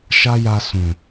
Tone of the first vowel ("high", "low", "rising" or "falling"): high